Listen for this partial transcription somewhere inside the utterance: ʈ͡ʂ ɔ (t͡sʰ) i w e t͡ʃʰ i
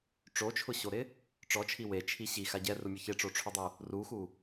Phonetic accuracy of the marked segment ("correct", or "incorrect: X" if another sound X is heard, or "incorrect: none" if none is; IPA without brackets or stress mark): incorrect: t͡ʃʰ